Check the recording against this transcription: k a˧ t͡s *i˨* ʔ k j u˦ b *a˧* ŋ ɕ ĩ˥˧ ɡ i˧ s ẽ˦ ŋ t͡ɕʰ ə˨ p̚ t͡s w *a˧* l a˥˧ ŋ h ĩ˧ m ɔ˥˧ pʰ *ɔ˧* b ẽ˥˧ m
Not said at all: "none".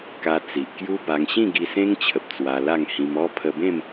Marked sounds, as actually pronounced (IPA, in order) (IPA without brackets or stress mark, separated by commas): i˨, a˧, a˧, ə˧